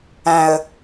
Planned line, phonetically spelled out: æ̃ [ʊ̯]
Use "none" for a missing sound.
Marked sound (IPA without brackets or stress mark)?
ə̯